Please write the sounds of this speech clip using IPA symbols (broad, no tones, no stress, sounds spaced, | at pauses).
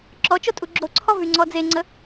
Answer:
ǁ ɔ t͡ʃ o tʼ u ɡ͡ǁ o ǀʰ ɔ v y ŋ͡ǀ ɔ d͡z e ŋ͡ǀ ə